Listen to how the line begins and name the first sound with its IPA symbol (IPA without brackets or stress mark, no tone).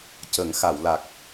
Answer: c